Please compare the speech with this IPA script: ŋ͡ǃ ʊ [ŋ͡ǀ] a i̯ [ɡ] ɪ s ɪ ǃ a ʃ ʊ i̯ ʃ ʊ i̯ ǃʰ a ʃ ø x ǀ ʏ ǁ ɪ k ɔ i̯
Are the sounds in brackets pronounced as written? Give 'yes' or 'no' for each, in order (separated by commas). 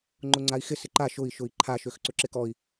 yes, no